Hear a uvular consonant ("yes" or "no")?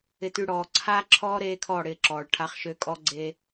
yes